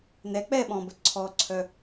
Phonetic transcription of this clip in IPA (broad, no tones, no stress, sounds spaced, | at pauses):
n ɛ k͡p ɛ ɓ ɔ̃ b ə ǀʰ ɔ ǀʰ œ